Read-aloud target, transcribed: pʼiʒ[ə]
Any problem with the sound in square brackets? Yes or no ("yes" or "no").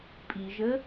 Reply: no